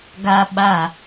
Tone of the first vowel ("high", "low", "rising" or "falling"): high